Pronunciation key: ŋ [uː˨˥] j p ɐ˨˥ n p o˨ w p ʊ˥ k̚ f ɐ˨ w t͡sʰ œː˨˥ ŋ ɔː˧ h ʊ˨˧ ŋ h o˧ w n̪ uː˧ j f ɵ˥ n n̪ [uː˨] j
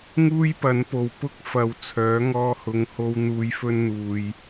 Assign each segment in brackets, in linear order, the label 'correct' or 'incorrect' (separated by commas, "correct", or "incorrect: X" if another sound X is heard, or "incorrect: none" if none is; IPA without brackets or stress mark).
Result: incorrect: uː˥, correct